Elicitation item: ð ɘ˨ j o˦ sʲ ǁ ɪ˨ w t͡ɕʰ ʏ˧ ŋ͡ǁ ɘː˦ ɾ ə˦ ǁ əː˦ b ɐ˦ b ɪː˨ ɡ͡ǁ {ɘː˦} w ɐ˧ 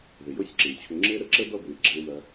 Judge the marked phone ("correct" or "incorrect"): incorrect